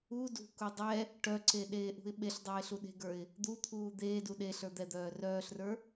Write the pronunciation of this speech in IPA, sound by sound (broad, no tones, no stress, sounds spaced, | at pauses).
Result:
u d ṳ k u dˤ ɛ | ʈ œ ǀ e ɗ eː ʔ ṳ ɪ̯ ɓ e ɬ dˤ eː ɬ u ɗ e̤ ɡ ə˞ ɪ̯ | d̪ u t̪ʰ uː d̪ eː d u ɗ e ɬ ə˞ d̪ ɛ d̪ œː r œː ɬ r ə˞